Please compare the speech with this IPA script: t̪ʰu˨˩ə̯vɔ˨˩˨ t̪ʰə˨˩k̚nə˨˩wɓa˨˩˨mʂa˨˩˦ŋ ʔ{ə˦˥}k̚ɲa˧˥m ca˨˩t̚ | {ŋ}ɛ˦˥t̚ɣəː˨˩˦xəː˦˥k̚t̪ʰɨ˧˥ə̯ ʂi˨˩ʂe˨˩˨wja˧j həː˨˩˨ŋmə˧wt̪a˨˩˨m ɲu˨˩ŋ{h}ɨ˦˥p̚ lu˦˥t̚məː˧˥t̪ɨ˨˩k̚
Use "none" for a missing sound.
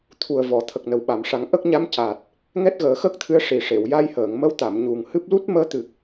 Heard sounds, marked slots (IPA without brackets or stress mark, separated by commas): ə˦˥, ŋ, h